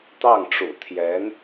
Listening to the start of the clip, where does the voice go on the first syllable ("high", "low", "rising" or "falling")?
falling